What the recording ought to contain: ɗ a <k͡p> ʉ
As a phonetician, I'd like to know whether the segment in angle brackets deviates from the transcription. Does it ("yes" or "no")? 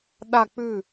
no